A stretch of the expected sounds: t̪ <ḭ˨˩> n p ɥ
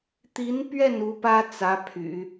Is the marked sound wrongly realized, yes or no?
yes